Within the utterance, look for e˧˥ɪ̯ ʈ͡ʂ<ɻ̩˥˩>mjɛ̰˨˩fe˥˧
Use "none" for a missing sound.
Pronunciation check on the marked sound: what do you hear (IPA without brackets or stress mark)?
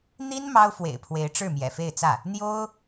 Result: ɻ̩˥˩